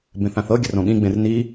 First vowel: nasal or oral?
nasal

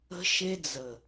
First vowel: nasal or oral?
oral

